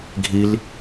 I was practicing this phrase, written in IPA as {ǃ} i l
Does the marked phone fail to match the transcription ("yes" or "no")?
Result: yes